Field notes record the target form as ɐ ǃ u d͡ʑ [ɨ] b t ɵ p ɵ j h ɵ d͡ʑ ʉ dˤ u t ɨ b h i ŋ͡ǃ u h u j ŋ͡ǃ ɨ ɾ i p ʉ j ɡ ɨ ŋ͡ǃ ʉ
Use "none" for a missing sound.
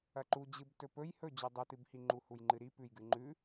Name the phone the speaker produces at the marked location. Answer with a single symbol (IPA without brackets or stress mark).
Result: ɨ